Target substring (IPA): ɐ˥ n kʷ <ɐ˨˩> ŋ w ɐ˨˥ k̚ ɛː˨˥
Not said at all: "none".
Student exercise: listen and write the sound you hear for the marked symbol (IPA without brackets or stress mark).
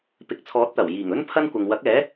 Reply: ɐ˨